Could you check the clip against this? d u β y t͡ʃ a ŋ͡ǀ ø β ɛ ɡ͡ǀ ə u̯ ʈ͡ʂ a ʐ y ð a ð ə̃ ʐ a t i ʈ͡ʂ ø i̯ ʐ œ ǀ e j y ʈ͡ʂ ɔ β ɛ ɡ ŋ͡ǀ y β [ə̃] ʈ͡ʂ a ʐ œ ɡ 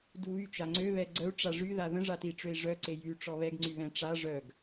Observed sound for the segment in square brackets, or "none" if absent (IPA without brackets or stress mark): ɛ̃